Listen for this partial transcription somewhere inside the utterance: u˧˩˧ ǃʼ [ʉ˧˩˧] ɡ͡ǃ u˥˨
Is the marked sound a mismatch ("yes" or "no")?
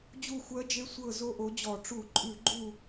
no